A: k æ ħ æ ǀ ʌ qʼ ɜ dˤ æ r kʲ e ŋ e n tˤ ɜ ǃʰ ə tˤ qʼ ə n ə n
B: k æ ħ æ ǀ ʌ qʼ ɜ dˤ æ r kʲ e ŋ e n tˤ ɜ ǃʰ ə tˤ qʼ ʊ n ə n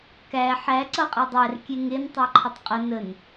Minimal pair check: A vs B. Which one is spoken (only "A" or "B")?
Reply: A